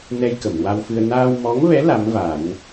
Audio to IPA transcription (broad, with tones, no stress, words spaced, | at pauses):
nɛ˧j kə˨˩˨mwa˧wfɨ˧ə̯ naː˧wmɔ˧˥ŋvɛ˧˥ la˧˥mva˨˩˦n